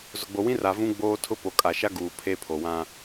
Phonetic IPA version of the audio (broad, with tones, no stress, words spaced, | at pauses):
zʊ˨ɡ͡bo˨wĩ˦ ra˨ vũ˦ɡ͡boː˦tʰʊ˦ po˨kʼa˨ʃa˦ ɡuː˨ pʰe˦pʰo˨ wã˦